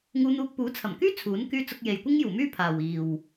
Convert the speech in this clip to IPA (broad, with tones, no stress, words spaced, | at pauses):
ŋuː˧n̪uː˧k̚ puː˨˥t͡sʰɐ˨˩mkyː˥ t͡sʰuː˨˥n kyː˥ t͡sʊ˧k̚je˨jkʷɪ˥ŋ juː˨˩myː˥ pʰaː˨wiː˨w